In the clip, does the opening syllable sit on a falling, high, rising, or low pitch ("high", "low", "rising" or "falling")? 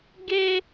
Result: high